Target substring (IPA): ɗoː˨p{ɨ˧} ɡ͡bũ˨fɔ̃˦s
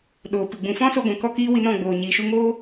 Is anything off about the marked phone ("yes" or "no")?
yes